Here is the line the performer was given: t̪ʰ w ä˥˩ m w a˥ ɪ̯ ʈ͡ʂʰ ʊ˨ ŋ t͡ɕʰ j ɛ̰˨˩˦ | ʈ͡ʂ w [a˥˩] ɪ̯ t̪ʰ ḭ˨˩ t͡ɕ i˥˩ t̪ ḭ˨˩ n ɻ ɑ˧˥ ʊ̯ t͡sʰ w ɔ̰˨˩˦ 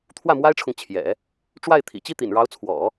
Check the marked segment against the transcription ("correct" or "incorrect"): correct